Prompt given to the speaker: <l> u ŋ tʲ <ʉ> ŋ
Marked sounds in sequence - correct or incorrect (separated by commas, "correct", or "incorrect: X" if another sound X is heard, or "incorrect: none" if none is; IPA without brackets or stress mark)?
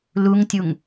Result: correct, incorrect: u